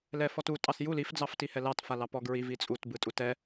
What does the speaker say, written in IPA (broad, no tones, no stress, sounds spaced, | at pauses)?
l ɛ f ɔ t u tʼ ɑ s j u l i f d͡z ɑ f t i h ɛ l ɑ t f a l ɑ p ɔ ɡ ɹ i v i t͡sʼ u t b ɯ tʼ u t ɛ